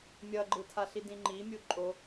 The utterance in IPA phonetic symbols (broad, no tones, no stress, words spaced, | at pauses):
mʲʌɡ͡ǃɯtʰa ɬidĩŋ͡ǃimʲu ǃʼo